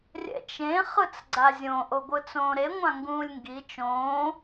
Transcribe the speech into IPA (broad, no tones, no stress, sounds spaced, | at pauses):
rʲ ɛ̰ t͡ʃ ẽ χ ɯ t͡s ɡ͡ǀ a zʲ õ ʔ o ɡʷ ɯ t͡s õː ɾ e ŋʷ ã ŋ ɡ ũː lʲ ŋ ɡ i t͡ʃ õː